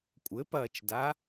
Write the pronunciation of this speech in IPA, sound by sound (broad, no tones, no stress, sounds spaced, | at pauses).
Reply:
kʷʼ ɘ p ɐː t͡ʃ d a